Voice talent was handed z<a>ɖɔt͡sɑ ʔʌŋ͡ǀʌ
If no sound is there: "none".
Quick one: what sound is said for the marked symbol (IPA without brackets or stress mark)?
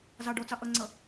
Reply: ɑ